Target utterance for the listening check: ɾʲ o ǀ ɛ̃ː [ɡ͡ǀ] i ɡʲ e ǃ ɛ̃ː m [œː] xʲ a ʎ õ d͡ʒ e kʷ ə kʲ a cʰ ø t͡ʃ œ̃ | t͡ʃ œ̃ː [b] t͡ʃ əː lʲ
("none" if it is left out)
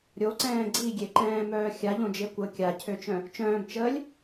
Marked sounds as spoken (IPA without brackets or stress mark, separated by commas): ɡ͡ǀ, œː, b